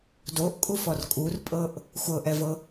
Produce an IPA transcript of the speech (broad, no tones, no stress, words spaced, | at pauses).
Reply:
doʔkʼufɔr kʼurpʼɤʔ | xʷɤʔɛvɤ